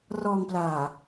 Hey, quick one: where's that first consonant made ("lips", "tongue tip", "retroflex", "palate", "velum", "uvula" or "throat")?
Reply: tongue tip